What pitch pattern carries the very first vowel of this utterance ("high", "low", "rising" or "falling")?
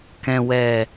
low